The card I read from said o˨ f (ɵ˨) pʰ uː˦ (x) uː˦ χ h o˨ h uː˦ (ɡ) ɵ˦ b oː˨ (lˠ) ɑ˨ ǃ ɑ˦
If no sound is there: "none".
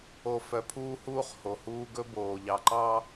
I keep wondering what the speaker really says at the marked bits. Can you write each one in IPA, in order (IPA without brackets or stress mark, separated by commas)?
œ˨, h, ɡ, ʎ